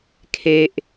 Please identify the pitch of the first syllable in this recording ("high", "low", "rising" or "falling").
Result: high